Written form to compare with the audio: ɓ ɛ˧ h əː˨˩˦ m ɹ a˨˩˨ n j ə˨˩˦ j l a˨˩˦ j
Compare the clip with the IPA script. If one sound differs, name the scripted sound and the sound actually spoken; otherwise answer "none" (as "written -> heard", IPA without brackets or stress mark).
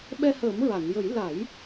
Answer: none